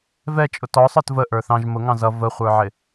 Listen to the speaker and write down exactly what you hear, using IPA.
vɛt͡ʃʼʊ tɔsˤə˞t vəʔə˞ θɑ̃ʒ mʊŋɑ̃z ʌ vəχʷə˞ʕɪ

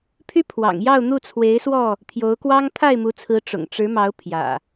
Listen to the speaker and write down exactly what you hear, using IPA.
pʰy˦ pʰwɑ̰˨˩ŋ jɑ˥˨ʊ̯n̪u˥˨ t͡sʰwe˨˦ɪ̯swɔ˥˨ | t̪ʰjo˨˦ʊ̯kwɑ˦ŋ t̪ʰa˥˨ɪ̯mu˨˦t͡sʰɹ̩˨˦ ʈ͡ʂʊ̰˨˩ŋ ʈ͡ʂɻ̩˨˦mɑ˨˦ʊ̯ pʰjä̰˨˩

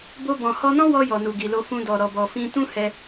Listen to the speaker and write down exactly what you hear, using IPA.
bo˧ bɔ̃˨ hɔ˧nɔ̃˦wɔ˧ jɔ˨nu˨ɡi˨lo˧ fũ˧dɔ˨ ɾɔ˨bɔ˨fĩ˧ tũ˦hɛ˧

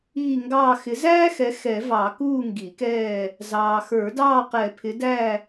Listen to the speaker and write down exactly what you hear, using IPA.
iː˦˨ŋɡɑː˦˨ xɪ˨˦zæː˥xɛ˨˦ xɛ˨˩˦vɑ˨˩˦ kuː˦˨ŋɡi˨˩˦kɛː˦˨ | zɑː˨xə˞˨˩˦dɑː˦˨qɛ˨˩˦ pʰɪ˨˦dæ˦˨

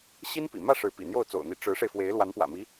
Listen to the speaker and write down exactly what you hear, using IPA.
ɕi˥npḭ˨˩ mä˥˩ ʂɻ̩˧˥pḭ˨˩n̪jo˥˩ʊ̯ t͡so̰˨˩ʊ̯n̪i˧˥ ʈ͡ʂɻ̩˧˥ʂe˧ɪ̯fwe˧˥ɪ̯ lwa˧˥npwä̰˨˩mi˧˥

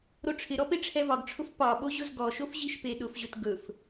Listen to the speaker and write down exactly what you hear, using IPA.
ɾoʈ͡ʂʰɪɾɔ peʈ͡ʂʰɛvɒɡʈ͡ʂʰʊf pɒɓo ʑʊzɡɔʃof ʑiʃpeɗʊfʑɵt ɡɵf

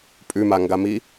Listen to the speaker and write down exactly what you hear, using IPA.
pʼʉmaŋɡami

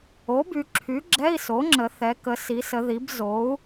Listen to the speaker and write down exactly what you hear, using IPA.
o˩˥by˩˧ ǁʰy˩˥ɡ͡ǁɛ˧˥˧i̯ so˩˥ŋ͡ǁə˩˧ θɛ˩˧kə˩˧si˩˧sə˩˧ ði˩˧b zo˩˥u̯

